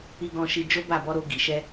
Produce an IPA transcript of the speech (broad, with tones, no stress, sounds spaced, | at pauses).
i˧ ɡ ɔ̃˧ ʃ i˧ d͡ʒ o˦ b a˦˨ b ɔ˧ ɾ o˧ ɡ i˨ ʃ ɛ˧